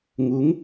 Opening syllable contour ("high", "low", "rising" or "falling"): rising